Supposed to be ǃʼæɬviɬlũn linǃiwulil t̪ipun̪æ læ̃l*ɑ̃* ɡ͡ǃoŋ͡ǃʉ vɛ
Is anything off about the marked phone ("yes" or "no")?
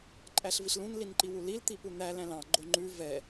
no